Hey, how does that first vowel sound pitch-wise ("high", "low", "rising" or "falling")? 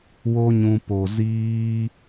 high